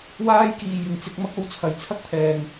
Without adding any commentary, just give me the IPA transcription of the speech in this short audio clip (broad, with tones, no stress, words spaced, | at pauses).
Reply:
waː˥jkiː˨ jɪ˨ŋt͡sɪ˧k̚ mɐ˥k̚o˨˥wt͡sʰɐ˨˧j t͡sʰɐ˥k̚pʰɛː˨ŋ